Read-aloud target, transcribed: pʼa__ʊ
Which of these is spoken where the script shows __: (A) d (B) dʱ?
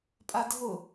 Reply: B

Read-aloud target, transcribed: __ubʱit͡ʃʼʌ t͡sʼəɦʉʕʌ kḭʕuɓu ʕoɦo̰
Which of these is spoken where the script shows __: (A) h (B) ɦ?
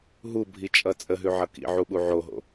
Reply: B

